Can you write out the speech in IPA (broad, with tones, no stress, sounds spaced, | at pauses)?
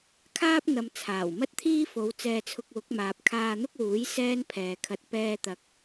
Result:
kʰ aː˥ p̚ n̪ ɐ˨ m t͡sʰ aː˨˩ w m ɐ˥ t̚ t̪ʰ iː˥ f o˨˧ w t͡s ɛː˧ t͡sʰ ʊ˧ k̚ w ʊ˨˥ k̚ m aː˨ p̚ kʰ aː˧ n̪ ʊ˥ k̚ w uː˨˥ j s ɛː˥ n pʰ ɛː˨ kʰ ɐ˧ t̚ p ɛː˧ t̪ ɐ˨ k̚